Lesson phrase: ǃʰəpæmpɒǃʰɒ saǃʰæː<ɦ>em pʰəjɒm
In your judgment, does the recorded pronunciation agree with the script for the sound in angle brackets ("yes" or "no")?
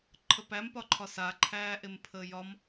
no